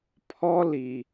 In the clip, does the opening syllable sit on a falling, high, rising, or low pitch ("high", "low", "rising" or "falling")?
high